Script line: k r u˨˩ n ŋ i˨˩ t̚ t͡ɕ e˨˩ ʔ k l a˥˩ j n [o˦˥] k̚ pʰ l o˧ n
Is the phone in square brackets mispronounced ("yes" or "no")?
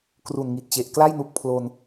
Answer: yes